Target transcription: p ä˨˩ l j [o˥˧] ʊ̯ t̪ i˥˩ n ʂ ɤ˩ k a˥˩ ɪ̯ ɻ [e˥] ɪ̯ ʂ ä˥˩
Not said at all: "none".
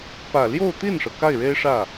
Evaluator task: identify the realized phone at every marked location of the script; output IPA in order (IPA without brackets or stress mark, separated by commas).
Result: o˥˧, e˥